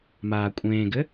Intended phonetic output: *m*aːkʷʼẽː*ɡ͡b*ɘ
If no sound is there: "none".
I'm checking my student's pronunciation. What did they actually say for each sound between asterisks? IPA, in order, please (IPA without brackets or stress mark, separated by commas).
m, ɡ